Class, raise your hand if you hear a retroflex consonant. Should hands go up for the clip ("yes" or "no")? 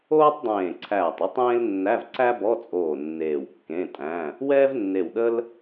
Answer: no